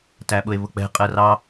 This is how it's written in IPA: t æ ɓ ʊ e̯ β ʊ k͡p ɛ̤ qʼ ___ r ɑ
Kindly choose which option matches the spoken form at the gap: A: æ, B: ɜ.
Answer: B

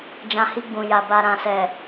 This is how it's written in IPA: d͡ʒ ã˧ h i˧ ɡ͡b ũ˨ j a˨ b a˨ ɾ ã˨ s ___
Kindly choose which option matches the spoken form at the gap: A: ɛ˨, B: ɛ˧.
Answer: A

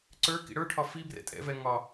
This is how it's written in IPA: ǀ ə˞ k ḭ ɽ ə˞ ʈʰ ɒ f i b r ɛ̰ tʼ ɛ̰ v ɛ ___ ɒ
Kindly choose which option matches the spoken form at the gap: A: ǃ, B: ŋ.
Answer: B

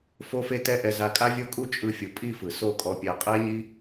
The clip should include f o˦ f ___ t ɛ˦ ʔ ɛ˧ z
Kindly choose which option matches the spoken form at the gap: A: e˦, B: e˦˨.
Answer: A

